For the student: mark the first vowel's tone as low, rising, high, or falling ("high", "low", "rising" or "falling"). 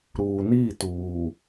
low